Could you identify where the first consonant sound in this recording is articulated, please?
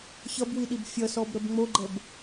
palatal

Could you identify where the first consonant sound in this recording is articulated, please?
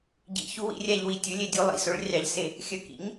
palatal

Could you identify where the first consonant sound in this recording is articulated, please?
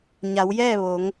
palatal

